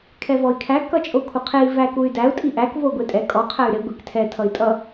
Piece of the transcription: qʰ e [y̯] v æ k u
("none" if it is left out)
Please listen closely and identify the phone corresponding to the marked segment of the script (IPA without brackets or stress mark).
i̯